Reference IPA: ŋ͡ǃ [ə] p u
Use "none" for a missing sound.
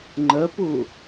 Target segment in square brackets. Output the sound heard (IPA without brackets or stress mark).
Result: ə